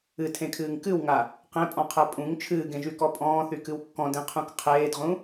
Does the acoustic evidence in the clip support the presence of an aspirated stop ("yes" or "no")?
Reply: yes